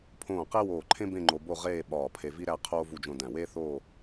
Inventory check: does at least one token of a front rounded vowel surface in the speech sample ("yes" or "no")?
no